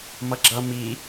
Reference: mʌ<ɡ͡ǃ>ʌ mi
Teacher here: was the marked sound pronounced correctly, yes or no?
no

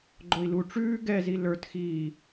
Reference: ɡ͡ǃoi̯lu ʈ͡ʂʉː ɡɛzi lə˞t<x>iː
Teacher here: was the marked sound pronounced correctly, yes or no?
yes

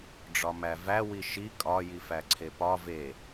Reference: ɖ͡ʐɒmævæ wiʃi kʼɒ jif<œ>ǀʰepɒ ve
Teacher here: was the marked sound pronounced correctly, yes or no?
no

